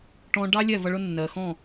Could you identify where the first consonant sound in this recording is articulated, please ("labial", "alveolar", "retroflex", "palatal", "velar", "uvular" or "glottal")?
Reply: retroflex